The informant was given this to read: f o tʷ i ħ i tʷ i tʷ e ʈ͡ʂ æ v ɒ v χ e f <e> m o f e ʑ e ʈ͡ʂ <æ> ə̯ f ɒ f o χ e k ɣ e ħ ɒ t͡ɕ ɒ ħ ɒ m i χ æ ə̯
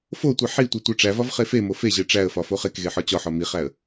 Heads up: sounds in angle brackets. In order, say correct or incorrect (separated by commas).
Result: correct, correct